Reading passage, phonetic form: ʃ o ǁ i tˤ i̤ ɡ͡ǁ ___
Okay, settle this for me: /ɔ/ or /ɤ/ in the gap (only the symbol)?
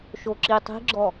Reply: ɔ